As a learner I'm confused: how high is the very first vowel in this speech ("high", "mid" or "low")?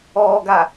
mid